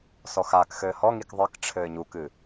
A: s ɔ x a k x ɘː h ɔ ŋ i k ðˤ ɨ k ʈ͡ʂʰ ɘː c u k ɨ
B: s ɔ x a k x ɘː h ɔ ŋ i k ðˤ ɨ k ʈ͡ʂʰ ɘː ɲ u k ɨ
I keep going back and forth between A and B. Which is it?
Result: B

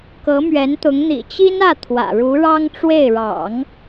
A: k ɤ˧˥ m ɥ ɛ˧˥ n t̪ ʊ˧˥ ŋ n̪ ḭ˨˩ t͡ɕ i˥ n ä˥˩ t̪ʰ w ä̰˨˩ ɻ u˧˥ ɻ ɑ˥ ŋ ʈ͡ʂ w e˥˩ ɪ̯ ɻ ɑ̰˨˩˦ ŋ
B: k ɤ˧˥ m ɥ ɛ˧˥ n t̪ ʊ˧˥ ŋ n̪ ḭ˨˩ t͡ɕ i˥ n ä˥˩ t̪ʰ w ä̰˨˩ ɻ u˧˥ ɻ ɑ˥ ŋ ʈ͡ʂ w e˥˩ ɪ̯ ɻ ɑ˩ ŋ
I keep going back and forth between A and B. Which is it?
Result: A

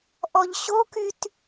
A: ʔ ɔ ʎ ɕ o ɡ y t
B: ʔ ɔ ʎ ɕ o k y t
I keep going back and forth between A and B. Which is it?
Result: B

